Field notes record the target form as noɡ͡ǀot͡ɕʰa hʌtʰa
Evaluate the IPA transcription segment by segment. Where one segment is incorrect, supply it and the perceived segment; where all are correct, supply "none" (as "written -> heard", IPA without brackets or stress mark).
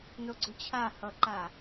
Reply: tʰ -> ǃ